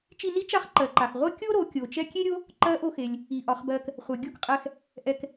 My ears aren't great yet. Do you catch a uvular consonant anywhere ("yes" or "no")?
yes